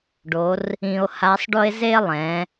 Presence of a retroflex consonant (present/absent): present